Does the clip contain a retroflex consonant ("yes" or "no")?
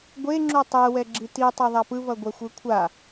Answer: no